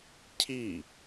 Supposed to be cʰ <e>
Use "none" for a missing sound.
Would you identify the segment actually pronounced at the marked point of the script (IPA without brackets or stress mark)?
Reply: i